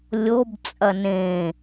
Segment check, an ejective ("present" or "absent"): present